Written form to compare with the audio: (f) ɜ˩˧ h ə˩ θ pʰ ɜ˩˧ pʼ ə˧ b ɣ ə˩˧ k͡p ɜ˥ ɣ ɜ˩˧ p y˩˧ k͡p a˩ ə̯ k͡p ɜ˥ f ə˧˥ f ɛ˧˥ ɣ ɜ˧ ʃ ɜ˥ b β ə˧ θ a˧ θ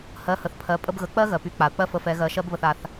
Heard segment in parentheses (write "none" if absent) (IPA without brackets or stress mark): h